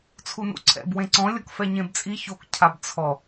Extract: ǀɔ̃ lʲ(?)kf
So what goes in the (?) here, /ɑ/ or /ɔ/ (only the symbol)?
ɔ